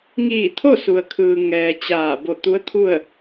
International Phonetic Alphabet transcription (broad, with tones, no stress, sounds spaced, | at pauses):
ŋ iː˧˩ t̪ʰ o˥˨ s u˩ ə̯ kʰ ɯː˩ ŋ ɛː˩ t͡ɕ aː˧˩ b o˧˩ t̪ u˧˥ ə̯ t̪ʰ u˥˨ ə̯